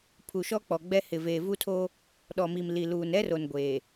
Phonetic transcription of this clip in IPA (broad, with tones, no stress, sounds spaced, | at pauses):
pʰ u˨ ʃ ɔ˦ k͡p ɔ˨ ɡ͡b ɛ˦ h ɪ˨ v eː˨ v u˦ tʰ o˦ | ɗ ɔ˨ m i˨ m l i˨ l uː˨ n ɛ˦ r o˨ n ɡʷ eː˨